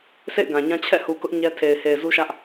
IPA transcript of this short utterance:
sʰḛ˦˨ɪ̯ ɡã˨ɲã˦ t͡ɕʰɛ̰˦˨hu˨ kʊ˦ʔ ɲɛ˦tʰe˨ɪ̯ he˨ɪ̯zu˦ʃä˦ʔ

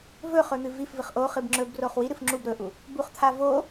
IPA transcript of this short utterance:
vɵχɵn̪ɨ vifvɨχ ʔoχɨb ŋ͡ǁɵbroχ wiɾɨf ŋ͡ǁub ɾɵʔu | buχt̪ʰa vo

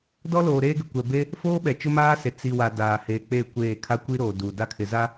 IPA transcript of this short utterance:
dɔ˦loː˨ɾeː˦ɡɪ˨ kʷɛ˨be˦ | foː˦ɓɛ˨ t͡ʃʊ˦maː˦se˨ t͡si˨wa˨ daː˨he˨ k͡pe˦˨kʷeː˦˨ kʰa˦kʷi˦ɾoː˨duː˨ da˦kʰɪ˨ za˦

